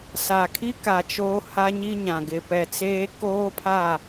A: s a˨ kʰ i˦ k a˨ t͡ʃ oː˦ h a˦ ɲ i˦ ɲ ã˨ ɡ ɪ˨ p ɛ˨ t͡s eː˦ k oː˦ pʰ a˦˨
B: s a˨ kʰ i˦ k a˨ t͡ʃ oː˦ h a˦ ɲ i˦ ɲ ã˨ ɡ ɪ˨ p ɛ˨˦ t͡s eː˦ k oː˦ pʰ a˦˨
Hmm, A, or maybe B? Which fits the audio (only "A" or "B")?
A